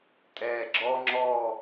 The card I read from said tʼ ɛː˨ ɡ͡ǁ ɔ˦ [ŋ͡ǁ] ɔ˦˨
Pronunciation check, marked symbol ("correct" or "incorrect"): correct